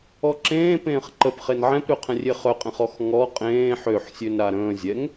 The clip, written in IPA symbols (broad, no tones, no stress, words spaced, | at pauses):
ɔǁẽː pẽːχǃəpχen ʕɛ̃pɾøqʰɛ̃rʲe χœqʼẽχ ɔxŋɔ qʼẽː ħøħsʲøn ɾaɾə̃ː zʲɛŋ